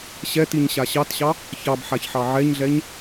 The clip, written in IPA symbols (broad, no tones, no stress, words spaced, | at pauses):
ɕɛtiɲɕa ɕɑtɕɑ | çɑbħaçħɑ ʕɛɲɮɛɲ